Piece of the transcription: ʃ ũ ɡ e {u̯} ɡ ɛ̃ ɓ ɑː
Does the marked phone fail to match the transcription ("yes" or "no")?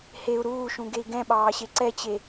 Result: yes